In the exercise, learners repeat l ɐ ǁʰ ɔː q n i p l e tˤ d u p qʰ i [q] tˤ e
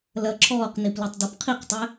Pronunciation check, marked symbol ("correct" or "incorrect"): correct